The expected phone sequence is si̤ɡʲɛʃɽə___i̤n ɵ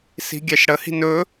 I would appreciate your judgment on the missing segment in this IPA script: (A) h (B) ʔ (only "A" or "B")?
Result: A